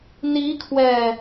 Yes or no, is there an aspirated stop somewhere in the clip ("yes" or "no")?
yes